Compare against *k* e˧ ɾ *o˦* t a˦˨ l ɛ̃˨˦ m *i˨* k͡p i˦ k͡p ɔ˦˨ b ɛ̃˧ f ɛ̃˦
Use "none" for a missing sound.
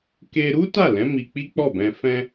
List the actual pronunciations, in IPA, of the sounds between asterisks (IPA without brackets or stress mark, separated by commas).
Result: k, u˦, i˧